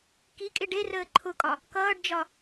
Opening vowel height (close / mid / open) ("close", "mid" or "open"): close